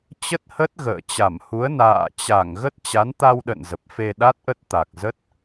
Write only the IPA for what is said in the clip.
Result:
t͡ɕ ə˦˥ t̚ h ə˦˥ t̚ ɣ ə̰ː˧˨ t͡ɕ a˧˩ m h u˨˦ ə̯ n a̰ː˧˨ t͡ɕ a˧˩ ŋ ɣ ə˦˥ t̚ t͡ɕ a˨˦ n t̪ a˧ w ɗ ə̰˧˨ n z ə˨˩ p̚ f e˧ ɗ a˦˥ t̚ ʔ ə˦˥ t̚ t̪ a˨˩ k̚ z ə˦˥ t̚

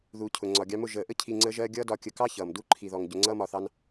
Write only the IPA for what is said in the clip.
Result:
ð u˨ cʰ ʊ˨ ŋ͡ǀ ɒ˨ ɡʲ ɑ˧ m ʊ˦˨ ʒ əː˨ ʔ ə˦ cʰ i˧ ŋ͡ǀ əː˦ ʒ ɜː˦ ɡʲ ʌː˦ d ɒ˧ kʲ ə˧ k ɑ˦ ç ʌː˨ m d u˦ ǃʰ i˧ ð ɔ˧ ŋ ɟ ʊ˧ ŋ͡ǀ ʌː˦ m ɒ˧ θ ɑ˦ n

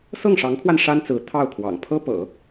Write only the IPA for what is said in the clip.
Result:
s ɤ˥˩ ŋ ʂ ɑ˧˥ ŋ kʰ w a˧ n ʂ a˥ n t͡s ɹ̩˧˥ t̪ʰ ɑ˥˩ ʊ̯ kʰ w ɑ̰˨˩ ŋ pʰ ɤ˥ p ɤ̰˨˩˦

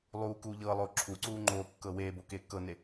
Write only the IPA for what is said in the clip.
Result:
lˠ uː k uː ʎ ɤː lˠ oː ǁʰ u ǀ uː ŋ͡ǃ oː kː ɤː w eː b o k eː kː ɤ n e

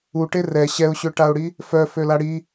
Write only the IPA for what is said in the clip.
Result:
u ʈ e r ɛ ɕ ɛ ʊ̯ ɕ ø ʈ a ʊ̯ ɽ i | f œ f ø l a ɽ i

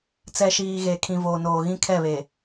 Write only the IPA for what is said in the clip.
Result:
t͡s ɛ˨ ʃ iː˨ ɣ e˨ kʰ ĩ˨ v oː˨ n oː˨ ɣ ĩ˦ kʰ ɛ˦˨ β e˨

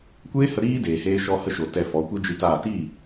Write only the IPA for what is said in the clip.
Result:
kʷ eː˦ h ə˧ ɾ iː˦ d eː˨ h eː˧ ʃ ɔ˧ h ə˧ ʃ o˨ t ɛ˧ f ɔ˨˦ kʷ i˦ d͡ʒ ɨ˧ t aː˦˨ t i˦˨

